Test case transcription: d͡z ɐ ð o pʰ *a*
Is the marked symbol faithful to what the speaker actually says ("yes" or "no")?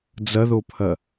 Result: no